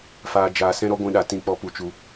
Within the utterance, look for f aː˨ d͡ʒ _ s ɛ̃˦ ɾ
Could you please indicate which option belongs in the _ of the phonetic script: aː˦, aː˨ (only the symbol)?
aː˨